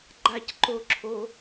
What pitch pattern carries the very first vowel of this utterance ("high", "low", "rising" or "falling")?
falling